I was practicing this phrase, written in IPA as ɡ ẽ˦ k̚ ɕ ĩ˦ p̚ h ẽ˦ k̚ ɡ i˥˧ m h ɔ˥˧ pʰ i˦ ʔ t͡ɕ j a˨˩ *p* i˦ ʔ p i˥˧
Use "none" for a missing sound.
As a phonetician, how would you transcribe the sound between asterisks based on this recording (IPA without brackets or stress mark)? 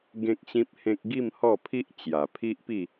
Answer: pʰ